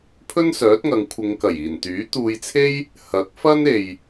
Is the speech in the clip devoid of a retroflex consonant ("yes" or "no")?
yes